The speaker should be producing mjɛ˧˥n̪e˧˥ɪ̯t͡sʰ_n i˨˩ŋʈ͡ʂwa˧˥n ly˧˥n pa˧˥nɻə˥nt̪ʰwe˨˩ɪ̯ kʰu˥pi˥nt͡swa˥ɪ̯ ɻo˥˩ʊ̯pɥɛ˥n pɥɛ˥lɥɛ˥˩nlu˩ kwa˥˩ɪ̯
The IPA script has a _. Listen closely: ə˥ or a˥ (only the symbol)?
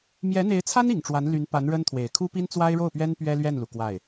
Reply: a˥